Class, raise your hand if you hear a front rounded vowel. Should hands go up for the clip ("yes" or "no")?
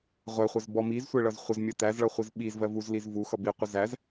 no